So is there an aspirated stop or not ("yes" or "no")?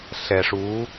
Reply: no